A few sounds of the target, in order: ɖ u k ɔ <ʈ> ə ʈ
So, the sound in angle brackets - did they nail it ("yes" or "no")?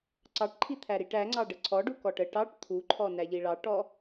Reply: yes